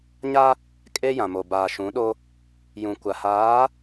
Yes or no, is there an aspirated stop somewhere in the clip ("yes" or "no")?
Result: no